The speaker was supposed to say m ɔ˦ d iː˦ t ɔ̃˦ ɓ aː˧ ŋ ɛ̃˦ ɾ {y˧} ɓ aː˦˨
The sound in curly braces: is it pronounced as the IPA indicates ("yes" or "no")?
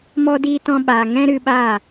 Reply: no